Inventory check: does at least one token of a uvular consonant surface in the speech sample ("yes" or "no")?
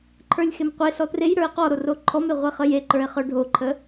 yes